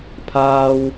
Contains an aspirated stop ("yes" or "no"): yes